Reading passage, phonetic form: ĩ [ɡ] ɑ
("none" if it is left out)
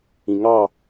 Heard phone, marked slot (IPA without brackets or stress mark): ŋ